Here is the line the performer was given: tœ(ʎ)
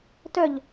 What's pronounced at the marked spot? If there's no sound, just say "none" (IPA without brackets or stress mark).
ʎ